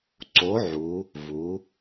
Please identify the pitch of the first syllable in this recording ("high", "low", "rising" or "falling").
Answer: rising